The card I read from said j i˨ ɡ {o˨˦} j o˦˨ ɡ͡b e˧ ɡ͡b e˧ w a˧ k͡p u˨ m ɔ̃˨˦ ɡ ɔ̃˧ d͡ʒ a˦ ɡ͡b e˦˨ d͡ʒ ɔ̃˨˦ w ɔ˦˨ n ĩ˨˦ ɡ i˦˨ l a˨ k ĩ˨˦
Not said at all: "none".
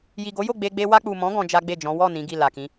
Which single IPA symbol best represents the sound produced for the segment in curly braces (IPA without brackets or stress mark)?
o˨˦